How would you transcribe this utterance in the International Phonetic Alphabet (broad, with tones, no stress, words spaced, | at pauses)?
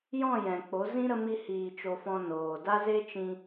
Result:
jɔ̃˦˨jɛ̃˨ k͡po˨˦zĩ˦ ɾə˦ mi˦hiː˧t͡ʃo˧ fɔ̃˧ noː˨ da˦ze˦t͡ʃĩ˧